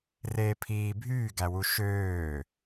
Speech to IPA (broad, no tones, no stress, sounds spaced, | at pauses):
r eː pʰ iː bʱ yː ɡ æ w u ʃ øː